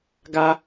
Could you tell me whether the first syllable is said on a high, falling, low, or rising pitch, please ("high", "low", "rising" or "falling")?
high